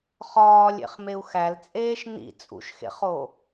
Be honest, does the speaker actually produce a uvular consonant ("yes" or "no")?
yes